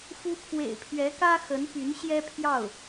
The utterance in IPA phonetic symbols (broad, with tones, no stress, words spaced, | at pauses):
fu˥ pʰwḛ˨˩ɪ̯pʰɥɛ˧˥kä˥ xə˧˥npy˧˥n ɕjɛ˥pʰjɑ˥˩ʊ̯